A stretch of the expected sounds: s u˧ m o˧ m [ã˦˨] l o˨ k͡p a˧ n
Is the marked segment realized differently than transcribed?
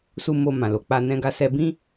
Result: yes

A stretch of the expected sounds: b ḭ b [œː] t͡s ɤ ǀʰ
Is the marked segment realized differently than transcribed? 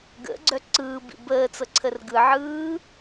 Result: yes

